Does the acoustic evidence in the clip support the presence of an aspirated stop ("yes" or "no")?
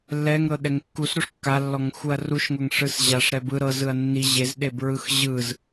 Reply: no